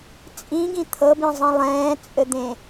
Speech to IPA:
t͡sʼĩɡĩ t̪ʰɤbĩzˤĩ lˠɛ̃ːt͡sʼɘd̪ẽ

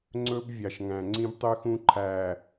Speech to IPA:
ŋ͡ǀɵ˦b vʲɑ˨ʃŋæ̃˨ŋ͡ǀĩ˦b tˤʉ˦xũ˦ǃʰæː˨

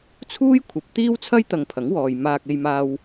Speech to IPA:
t͡sʰuː˥jkʷʰɐ˨˥p̚ t̪iː˥wt͡sʰɐ˥jt̪ɐ˨ŋ pʰɐ˨˥ŋwɔː˨j maː˧k̚e˧jmaː˧w

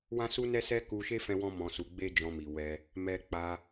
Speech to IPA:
wã˦su˦nɛ˦sɛ˦ ku˧ʃe˦fɛ̃˧wɔ̃˧ mɔ̃˨su˨ ɡ͡be˧d͡ʒɔ̃˨ mi˨wɛ˧ | mɛ˧k͡pa˧

